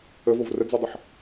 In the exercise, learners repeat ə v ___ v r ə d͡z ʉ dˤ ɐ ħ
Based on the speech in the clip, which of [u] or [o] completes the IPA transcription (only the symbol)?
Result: o